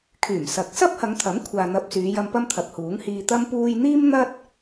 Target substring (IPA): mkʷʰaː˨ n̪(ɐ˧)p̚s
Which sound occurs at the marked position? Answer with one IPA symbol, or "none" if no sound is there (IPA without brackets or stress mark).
ɐ˧